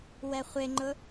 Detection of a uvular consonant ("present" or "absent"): present